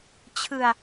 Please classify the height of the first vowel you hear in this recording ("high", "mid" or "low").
high